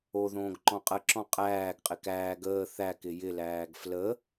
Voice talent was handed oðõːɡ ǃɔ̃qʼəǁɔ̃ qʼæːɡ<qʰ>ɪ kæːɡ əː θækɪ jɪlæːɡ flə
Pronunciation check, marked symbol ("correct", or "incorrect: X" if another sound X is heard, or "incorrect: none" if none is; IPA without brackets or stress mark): incorrect: qʼ